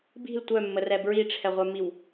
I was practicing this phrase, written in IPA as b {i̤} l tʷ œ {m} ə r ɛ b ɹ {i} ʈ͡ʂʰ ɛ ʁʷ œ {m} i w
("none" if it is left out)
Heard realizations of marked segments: i̤, mː, i, m

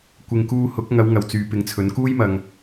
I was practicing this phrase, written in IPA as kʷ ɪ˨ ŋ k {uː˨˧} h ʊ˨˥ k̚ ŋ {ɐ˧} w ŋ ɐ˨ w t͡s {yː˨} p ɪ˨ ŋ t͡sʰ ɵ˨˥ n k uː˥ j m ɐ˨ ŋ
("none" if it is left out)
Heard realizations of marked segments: uː˧, ɐ˨˧, yː˨

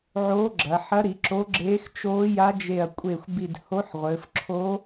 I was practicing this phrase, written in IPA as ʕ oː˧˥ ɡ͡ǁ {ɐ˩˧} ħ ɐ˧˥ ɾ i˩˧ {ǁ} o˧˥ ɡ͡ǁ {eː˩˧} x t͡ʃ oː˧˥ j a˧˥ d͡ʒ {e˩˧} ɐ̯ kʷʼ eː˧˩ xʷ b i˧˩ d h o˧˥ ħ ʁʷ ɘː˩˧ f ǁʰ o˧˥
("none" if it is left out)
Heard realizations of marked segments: ɐ˩˧, ǁ, eː˧˥, e˧˩

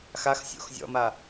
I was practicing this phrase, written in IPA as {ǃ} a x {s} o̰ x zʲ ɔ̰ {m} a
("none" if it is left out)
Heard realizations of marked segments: x, sʲ, m

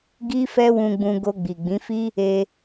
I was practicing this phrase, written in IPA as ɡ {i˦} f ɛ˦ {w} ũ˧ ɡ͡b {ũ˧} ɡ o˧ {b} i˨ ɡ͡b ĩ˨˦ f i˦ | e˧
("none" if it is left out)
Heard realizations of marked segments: i˦, w, ũ˧, ɡ͡b

